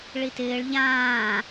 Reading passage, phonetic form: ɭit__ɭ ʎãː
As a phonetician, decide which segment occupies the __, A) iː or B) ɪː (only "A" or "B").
B